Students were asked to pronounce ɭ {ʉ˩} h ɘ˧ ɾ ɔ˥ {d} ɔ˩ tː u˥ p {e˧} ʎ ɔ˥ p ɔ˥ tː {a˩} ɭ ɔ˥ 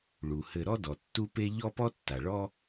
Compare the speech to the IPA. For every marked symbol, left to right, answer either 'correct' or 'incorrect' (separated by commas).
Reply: incorrect, correct, incorrect, correct